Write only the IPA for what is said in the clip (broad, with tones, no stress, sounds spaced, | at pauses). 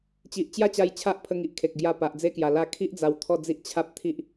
t͡ɕ i˨ ʔ t͡ɕ j a˥˧ t͡ɕ a˧ j t͡ɕʰ a˦ ʔ pʰ ə˧ ŋ i˨ ʔ kʰ e˨ k̚ ɡ j a˧ p a˨ ʔ d͡z e˦ k j a˨˩ l a˧ kʰ i˦ ʔ d͡z a˧ w t̪ʰ ɔ˥˧ d͡z i˦ ʔ t͡ɕʰ a˦ p̚ t̪ʰ i˦ ʔ